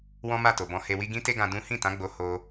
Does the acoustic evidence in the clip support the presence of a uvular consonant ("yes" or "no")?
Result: no